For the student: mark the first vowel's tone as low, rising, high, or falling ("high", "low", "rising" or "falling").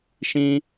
high